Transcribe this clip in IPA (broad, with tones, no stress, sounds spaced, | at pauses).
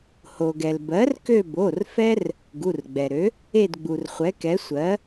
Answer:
h o˩ ɡ ɛ˩ l b ɜ˩˥ r k ø˦˨ b o˩˧˩ r f ɛ˦ r | ɡ u˩˧˩ r ɡ͡b ɛ˩ ɾ ø˩˥ | e˦˨ d ɡ͡b u˩ r χʷ ɛ˩˥ k ɛ˩˥ sʷ ɜ˩˥